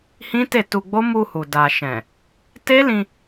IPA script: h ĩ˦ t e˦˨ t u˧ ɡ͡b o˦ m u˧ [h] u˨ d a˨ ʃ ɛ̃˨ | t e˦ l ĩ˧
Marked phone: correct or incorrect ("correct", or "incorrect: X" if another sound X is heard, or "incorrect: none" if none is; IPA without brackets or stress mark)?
correct